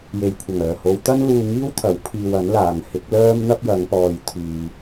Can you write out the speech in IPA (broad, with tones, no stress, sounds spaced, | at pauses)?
j e˨˩ j kʷʰ ɐ˨˩ ŋ œː˨˩ h o˨˧ w t̪ ɐ˥ n l uː˧ ŋ iː˥ w t̪ʰ ɐ˨˥ w pʰ iː˧ w ɐ˨˥ n l aː˨ ŋ h ɪ˨˥ k̚ l œː˥ m n̪ ɐ˥ p̚ j ɐ˨˧ ŋ p ɔː˨ j t̪ʰ yː˨